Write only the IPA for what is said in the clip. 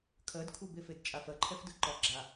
kʰɜdkʰubefed t͡ʃʼafɜǃʰɛfdɯ ǃɒ ɡ͡ǁa

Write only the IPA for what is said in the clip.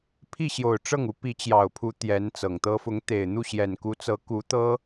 pʰi˥˩ɕjo˨˩ʊ̯ʈ͡ʂɤ˥˩ŋu˧˥ pi˧˥t͡ɕjɑ˨˩ʊ̯pʰu˧˥ t̪jɛ˧˥nt͡sɤ˨˩ŋt̪ɤ˥ fʊ˧˥ŋt̪e˨˩ɪ̯n̪u˥˩ ɕjɛ˨˩nku˧˥t͡sɤ˧˥ ku˧˥t̪ɤ˥

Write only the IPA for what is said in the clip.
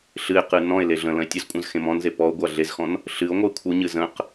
ɬɨe̯qɨ nɔ̃e̯le ɮə̃ lə̃e̯tʲɨzkʷʼə̃z xẽmɔ̃nze pɔo̯ɡʷa ɮezxɔ̃n | ɬɨo̯ŋʷəe̯ kʷʰɨɲɨ zə̃q

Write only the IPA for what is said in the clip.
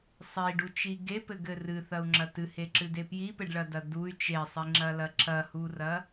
sˤiɖut͡ʃi ɡepɘɡɘ rɨθɐu̯ŋ͡ǁɐ tɨheǁɨde pjipɘɖɭɐdɐ duy̯ t͡ʃesˤiŋ͡ǁɐlɐ ǁɐhurɐ

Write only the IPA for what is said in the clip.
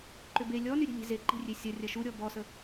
ǃʏbe lʲɔny ɾʲɛ̤lʲe̤ze ǃi̤rʲesʲɐ rʲɐʃuɾʲɔ bɔsə

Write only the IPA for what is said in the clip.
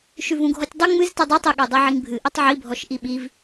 ʃʉvũɡʱɔtʲdˤu ŋ͡mɨztɨ dˤʉtˤiɠɛ dˤiʕiŋbʱɨ ʔitˤʕibʱɔʃ ʔiɓiv

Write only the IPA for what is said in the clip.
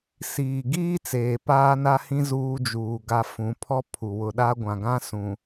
siː˨ ɡiː˦ t͡seː˨paː˦na˦hĩ˦ zuː˦d͡ʒuː˨ɡa˦fũ˨˦ pʰɔ˦ pʰu˨ wʊ˨ɗa˦ ɡʷã˨ɡã˦ sũ˨

